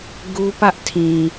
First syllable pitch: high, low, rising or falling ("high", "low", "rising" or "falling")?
high